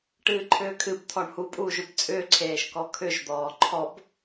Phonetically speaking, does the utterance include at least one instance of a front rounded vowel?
yes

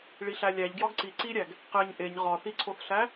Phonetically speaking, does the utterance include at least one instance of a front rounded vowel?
no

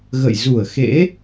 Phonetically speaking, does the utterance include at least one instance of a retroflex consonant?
no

